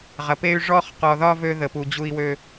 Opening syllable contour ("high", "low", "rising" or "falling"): low